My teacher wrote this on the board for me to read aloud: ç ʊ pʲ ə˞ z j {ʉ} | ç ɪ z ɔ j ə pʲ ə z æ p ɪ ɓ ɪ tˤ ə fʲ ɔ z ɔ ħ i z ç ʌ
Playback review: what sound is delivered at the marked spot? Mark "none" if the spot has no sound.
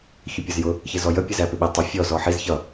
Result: ʊ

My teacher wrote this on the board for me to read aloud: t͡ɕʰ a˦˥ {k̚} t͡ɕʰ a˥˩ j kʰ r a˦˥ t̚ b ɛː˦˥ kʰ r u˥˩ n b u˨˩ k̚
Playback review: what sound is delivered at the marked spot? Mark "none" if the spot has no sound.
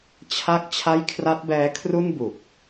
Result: k̚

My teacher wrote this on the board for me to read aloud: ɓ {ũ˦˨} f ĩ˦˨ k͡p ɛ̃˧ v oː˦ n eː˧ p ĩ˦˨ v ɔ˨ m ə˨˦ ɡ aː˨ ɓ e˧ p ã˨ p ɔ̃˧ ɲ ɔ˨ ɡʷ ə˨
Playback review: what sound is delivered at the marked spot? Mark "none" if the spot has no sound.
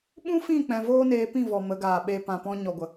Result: ũ˦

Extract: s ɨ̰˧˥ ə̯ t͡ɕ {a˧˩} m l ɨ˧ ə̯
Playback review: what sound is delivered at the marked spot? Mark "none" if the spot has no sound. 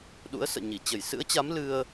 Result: a˨˦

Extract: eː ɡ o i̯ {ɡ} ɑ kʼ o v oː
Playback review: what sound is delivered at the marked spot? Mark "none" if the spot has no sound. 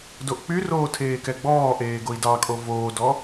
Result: d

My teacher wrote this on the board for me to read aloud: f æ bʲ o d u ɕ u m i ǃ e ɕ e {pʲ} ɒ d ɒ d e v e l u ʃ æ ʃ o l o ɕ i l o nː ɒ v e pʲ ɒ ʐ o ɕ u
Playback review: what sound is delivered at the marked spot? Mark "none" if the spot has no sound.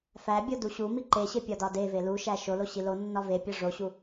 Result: pʲ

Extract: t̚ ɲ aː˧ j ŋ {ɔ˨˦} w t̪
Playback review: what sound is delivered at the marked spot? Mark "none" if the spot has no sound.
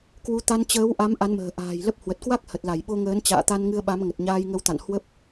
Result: ə˨˦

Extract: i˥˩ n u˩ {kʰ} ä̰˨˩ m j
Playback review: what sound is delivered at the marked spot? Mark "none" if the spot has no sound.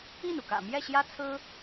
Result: k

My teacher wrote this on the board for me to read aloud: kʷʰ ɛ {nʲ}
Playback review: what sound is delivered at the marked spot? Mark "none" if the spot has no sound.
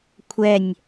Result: nʲ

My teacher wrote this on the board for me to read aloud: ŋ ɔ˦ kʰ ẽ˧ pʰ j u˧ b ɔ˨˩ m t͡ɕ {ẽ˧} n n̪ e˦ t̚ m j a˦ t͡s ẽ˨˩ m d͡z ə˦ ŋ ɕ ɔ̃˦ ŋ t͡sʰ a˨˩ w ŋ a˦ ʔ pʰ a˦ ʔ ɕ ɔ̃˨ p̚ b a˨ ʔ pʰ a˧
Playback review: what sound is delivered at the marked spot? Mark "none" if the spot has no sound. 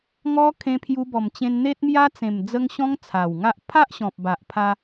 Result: ẽ˧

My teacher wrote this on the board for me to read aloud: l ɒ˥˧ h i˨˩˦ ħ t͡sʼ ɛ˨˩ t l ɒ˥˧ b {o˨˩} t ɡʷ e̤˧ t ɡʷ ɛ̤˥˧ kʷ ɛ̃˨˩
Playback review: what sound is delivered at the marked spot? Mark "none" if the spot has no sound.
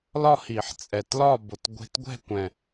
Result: o˨˩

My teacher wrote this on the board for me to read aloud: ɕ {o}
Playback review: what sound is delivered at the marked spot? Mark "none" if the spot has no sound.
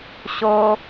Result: o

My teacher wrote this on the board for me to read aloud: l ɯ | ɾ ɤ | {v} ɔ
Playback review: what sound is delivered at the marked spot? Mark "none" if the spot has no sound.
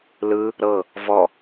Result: v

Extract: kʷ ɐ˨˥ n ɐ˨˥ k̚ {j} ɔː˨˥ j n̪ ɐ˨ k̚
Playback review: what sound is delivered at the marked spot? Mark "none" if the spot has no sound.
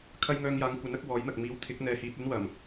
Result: w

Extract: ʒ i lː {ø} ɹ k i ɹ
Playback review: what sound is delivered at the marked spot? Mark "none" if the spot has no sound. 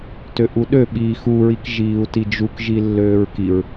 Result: øː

